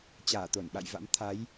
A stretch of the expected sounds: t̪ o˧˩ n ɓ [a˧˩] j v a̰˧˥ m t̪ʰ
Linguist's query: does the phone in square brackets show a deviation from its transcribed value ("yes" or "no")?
yes